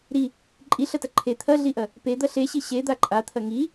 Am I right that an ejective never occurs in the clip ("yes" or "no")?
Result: no